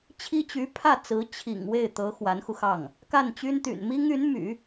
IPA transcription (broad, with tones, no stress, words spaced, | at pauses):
t͡ɕʰi˥t͡ɕy˧˥ pʰä˥˩t͡sɹ̩˧˥ t͡ɕʰḭ˨˩ŋ we˥˩ɪ̯t̪ɤ˧˥ xwa˧˥nxu˧xɑ˥˩ŋ | ka˥˩nt͡ɕy˥n t̪y̰˨˩nmi˥ŋy˧˥n my̰˨˩˦